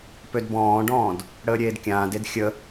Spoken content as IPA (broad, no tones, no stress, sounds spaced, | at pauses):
p ø d b ɔ̃ː ɖ ɔ̃ː d | ɽ əː ɾʲ eː d kʲ ãː d e d xʲ ə